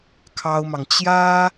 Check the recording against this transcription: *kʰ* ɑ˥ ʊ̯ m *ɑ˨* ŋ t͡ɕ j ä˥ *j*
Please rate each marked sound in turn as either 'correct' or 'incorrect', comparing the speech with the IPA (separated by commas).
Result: correct, correct, incorrect